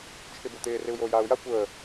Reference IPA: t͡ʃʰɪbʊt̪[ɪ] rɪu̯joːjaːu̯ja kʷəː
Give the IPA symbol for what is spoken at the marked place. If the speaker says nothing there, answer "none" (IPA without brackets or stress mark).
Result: ɪː